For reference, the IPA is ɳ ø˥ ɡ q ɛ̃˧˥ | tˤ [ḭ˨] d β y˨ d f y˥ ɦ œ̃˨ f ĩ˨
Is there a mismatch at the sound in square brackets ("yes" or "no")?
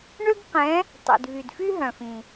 no